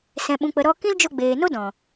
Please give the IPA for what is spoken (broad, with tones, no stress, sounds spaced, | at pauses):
s ɛ̃˨ ɓ ũ˨ k͡p ə˨ ɾ ɔ˧ k ĩ˦ l d͡ʒ o˧ ɡ͡b eː˨ n o˦ d ɔ̃˨